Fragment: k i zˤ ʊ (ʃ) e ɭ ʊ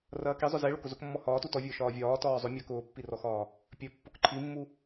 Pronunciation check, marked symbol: incorrect: z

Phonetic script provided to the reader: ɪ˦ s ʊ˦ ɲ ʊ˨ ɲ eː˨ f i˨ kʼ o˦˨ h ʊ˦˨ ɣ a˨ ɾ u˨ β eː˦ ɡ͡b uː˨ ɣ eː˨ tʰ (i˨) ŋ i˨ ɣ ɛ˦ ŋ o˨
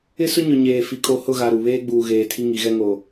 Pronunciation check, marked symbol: incorrect: i˦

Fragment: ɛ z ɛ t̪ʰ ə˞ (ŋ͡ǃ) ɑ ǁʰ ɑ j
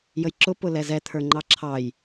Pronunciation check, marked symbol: correct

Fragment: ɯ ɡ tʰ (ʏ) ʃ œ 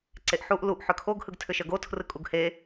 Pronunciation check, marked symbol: correct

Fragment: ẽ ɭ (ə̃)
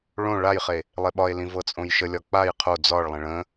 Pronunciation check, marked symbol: correct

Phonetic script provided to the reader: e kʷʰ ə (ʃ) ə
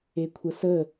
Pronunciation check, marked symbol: incorrect: s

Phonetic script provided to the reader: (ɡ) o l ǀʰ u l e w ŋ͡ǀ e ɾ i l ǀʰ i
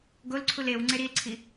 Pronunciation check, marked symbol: correct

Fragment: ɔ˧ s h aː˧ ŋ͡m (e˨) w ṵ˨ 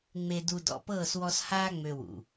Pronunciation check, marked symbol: incorrect: ø˨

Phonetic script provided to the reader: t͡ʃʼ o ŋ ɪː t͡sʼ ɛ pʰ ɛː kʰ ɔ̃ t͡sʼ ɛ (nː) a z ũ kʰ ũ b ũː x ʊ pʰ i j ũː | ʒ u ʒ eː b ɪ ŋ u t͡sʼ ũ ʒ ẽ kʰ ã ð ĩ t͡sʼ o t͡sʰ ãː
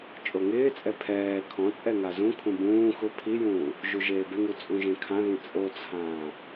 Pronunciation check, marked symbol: incorrect: ŋ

